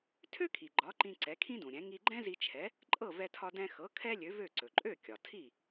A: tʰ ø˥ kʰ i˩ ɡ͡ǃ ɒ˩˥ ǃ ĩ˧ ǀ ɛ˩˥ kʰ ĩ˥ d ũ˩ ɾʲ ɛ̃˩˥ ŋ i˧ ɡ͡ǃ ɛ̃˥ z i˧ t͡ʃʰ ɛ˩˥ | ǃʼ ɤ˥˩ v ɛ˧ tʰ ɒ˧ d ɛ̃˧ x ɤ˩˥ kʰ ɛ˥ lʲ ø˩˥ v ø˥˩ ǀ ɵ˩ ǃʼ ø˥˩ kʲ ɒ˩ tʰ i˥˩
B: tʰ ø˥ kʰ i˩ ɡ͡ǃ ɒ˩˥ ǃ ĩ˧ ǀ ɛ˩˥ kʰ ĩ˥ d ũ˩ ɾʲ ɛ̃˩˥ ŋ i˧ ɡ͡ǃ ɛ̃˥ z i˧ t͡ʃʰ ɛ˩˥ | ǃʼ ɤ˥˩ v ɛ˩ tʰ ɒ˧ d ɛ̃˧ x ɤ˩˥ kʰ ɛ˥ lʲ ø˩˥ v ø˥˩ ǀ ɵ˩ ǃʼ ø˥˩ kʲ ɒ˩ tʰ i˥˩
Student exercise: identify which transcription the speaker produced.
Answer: A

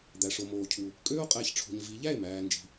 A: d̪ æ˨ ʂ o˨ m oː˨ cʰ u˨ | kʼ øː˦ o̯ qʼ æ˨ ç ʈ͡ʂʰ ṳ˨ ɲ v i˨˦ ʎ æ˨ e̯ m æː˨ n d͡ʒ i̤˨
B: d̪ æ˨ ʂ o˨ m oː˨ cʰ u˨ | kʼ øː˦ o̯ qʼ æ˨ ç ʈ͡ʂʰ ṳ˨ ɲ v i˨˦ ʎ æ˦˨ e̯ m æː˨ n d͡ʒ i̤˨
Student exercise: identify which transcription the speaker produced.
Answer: B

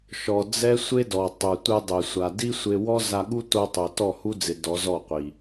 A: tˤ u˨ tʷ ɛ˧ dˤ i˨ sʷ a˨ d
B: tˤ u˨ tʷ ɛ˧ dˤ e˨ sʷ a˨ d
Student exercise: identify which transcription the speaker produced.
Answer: B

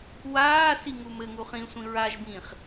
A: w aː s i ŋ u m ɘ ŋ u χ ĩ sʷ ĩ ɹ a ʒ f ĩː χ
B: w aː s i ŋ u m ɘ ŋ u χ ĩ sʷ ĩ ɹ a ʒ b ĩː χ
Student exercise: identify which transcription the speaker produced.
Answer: B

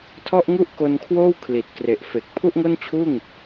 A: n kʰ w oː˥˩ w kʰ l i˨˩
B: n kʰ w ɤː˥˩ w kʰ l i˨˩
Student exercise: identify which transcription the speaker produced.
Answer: A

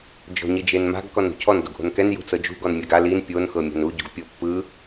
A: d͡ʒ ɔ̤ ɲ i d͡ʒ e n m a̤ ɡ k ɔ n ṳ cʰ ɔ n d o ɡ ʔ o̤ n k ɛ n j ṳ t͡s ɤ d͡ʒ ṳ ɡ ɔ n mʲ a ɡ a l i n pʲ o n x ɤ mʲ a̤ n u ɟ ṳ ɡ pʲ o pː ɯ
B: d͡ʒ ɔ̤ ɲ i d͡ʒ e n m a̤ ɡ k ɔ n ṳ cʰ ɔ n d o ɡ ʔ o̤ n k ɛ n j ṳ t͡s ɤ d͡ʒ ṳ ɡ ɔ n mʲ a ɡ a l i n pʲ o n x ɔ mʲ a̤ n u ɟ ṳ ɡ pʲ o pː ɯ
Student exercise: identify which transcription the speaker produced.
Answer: A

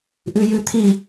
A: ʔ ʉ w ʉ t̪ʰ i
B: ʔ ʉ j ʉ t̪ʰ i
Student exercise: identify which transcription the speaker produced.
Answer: B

